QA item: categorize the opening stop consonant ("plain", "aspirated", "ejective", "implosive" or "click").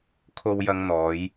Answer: aspirated